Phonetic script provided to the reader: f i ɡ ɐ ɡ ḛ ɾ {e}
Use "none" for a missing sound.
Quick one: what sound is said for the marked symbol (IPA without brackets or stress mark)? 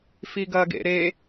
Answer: e